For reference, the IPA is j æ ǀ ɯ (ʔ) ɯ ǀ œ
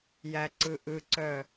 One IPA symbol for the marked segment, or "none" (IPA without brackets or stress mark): ʔ